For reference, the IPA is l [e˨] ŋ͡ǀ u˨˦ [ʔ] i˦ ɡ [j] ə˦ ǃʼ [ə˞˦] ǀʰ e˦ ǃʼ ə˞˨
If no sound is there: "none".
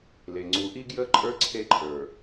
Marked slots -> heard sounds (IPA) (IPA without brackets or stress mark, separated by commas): e˨, ʔ, j, ə˞˦